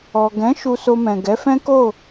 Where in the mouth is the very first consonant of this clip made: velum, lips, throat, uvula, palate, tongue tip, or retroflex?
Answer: velum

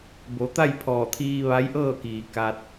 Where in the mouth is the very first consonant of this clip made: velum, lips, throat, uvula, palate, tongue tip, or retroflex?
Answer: lips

